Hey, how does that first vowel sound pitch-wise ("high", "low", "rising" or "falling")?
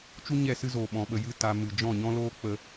high